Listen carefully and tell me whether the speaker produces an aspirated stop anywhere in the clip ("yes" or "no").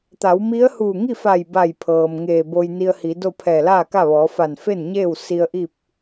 yes